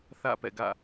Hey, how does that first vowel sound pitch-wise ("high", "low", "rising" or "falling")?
falling